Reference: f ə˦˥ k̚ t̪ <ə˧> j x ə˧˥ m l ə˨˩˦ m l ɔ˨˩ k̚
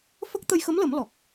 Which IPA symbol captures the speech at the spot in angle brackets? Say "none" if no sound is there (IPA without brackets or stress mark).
ə˧